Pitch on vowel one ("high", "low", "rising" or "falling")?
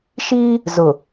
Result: high